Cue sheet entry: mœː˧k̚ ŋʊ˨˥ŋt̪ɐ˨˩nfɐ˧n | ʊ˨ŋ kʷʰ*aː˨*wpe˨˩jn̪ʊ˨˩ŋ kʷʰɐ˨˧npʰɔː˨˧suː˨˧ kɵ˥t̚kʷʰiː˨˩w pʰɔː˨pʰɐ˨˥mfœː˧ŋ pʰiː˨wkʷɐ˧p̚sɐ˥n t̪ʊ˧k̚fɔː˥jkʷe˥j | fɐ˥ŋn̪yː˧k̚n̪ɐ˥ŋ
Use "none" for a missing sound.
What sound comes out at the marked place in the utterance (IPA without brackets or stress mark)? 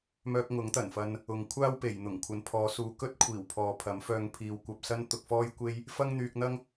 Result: aː˥